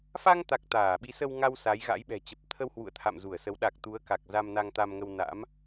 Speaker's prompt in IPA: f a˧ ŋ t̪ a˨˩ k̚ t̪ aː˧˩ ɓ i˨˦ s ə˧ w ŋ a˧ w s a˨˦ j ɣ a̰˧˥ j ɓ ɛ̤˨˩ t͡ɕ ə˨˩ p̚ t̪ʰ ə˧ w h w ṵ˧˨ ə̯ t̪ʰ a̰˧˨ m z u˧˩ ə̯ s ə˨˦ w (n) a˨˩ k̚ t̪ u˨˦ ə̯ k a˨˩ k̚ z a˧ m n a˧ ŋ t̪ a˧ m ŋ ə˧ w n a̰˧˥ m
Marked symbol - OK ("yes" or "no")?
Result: no